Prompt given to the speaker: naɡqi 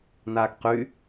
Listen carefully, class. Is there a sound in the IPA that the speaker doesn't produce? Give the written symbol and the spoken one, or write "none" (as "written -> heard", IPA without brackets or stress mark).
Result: i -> y